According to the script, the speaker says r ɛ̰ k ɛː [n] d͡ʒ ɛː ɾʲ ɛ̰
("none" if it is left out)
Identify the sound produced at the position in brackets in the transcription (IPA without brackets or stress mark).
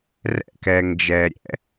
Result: ŋ